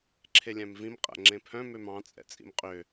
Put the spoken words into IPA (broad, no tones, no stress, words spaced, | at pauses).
ǁʰelʲæ̃mvĩm qʼæ̰ŋ͡ǁẽpʰœ̃ mømɑ̃ t͡sʼɛ̰t͡sʼḭmqʼø